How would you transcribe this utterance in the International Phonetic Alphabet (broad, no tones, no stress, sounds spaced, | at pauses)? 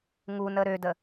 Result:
ŋ u n ə ɾ ø d ə